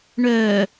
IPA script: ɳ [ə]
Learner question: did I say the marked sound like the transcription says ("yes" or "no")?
no